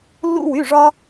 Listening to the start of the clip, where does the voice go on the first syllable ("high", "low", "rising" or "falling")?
high